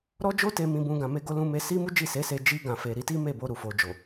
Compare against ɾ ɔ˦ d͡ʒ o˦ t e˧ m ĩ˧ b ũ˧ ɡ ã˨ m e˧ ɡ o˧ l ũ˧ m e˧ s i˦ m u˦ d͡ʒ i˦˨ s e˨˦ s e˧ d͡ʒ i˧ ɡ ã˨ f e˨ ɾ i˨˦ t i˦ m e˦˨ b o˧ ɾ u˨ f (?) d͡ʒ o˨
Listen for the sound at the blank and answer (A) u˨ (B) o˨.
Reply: B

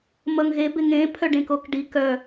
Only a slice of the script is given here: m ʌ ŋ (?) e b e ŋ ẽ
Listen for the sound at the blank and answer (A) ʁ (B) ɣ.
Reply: B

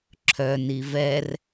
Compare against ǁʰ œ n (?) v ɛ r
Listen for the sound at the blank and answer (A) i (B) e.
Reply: A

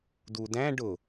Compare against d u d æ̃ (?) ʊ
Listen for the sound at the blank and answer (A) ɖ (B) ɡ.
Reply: A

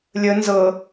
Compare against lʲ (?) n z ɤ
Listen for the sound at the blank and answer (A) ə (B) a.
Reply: A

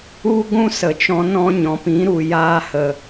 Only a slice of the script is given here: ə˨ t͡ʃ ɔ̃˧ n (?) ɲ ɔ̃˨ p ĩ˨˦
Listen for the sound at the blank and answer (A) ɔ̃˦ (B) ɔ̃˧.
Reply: A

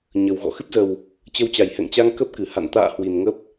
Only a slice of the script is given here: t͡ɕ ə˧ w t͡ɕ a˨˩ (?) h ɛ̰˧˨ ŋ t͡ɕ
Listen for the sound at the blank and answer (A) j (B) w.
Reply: A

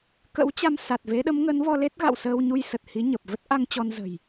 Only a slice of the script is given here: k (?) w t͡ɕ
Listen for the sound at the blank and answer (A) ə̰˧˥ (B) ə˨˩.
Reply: A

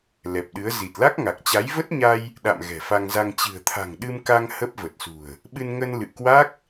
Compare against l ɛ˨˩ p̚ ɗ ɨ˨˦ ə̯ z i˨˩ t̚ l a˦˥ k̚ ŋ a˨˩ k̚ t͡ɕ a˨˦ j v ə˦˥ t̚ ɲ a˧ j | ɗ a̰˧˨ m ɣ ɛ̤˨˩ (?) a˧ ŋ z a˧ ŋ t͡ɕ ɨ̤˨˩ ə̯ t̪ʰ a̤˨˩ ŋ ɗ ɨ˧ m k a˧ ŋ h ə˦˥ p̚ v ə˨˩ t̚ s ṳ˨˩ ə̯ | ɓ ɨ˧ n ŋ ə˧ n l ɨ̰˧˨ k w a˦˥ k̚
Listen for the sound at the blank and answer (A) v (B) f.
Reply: B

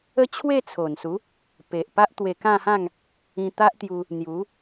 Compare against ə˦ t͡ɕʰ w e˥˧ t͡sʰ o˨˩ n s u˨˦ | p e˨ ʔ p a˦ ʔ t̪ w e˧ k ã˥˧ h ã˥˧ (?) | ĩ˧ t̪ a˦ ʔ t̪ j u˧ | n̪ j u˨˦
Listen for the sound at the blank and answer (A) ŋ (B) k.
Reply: A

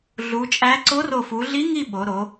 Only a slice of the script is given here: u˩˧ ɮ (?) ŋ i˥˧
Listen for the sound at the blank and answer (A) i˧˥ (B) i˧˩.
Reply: A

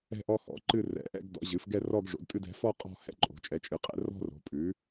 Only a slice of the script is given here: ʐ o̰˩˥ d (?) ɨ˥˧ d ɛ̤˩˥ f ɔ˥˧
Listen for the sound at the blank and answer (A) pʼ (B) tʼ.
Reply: B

